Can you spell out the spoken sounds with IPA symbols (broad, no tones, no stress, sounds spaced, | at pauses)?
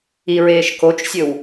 i ɹ eː ʃ k o t͡ʃ sʲ ɵ w